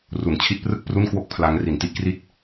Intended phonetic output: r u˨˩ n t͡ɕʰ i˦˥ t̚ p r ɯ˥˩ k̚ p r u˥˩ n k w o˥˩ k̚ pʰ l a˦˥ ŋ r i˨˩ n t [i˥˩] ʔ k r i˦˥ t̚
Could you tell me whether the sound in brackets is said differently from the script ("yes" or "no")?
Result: yes